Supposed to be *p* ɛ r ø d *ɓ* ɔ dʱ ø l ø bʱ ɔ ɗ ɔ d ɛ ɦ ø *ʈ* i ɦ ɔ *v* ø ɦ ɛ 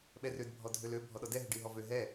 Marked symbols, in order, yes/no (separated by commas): no, no, no, yes